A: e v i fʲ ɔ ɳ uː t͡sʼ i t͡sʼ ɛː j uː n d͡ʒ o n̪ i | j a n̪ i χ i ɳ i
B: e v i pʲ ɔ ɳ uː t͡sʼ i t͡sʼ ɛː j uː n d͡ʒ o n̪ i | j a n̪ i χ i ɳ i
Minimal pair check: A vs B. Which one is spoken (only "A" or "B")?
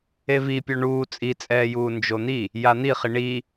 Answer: B